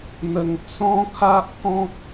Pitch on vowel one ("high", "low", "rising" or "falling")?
low